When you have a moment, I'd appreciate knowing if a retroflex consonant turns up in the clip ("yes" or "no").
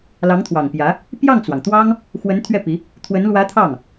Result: no